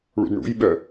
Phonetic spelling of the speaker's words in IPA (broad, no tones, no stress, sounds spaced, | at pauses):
ɭ ṵ d ɳ ṵ j ɓ œ